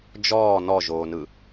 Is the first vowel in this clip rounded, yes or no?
yes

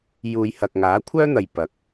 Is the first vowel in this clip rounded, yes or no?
yes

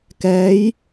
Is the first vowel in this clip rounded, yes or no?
no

